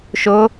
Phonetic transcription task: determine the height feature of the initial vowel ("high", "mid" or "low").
high